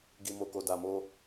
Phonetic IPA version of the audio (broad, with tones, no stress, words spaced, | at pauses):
ɡi˨ mo˨ko˨ da˨mo˧